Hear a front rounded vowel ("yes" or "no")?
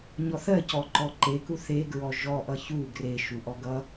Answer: no